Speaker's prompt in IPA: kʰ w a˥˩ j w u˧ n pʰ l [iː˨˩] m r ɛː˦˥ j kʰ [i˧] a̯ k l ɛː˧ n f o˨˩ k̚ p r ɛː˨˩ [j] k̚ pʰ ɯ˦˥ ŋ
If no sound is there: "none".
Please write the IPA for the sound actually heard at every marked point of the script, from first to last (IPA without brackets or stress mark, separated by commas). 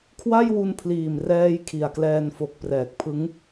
iː˨˩, i˨˩, none